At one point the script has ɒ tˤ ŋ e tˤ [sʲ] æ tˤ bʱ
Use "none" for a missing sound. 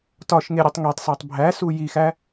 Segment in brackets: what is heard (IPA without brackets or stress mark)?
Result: s